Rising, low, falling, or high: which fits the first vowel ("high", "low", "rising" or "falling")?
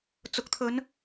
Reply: low